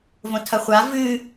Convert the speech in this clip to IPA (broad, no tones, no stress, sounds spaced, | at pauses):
v õ tʰ ɐ χʷ a v ɨ